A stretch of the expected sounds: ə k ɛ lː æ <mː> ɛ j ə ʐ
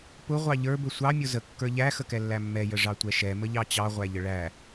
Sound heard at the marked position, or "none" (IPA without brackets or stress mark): mː